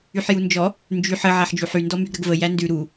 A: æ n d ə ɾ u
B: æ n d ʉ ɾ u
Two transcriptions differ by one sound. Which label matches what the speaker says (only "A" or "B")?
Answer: B